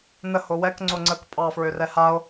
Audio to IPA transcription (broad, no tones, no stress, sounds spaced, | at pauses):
n ə h o w ɛ k ŋ͡ǀ o ŋ͡ǀ ə k pʼ ɑ f ɹ ø r ɛ h a o̯